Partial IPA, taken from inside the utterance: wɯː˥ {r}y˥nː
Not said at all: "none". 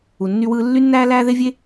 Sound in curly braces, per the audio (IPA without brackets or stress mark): lː